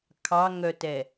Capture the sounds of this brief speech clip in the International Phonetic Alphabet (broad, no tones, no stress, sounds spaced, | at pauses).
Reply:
kʰ ɑ ŋ œ t ɛ